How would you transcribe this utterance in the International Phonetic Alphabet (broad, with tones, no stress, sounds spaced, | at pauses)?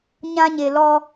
ɲ ã˦ ɲ e˨ l ɔ˦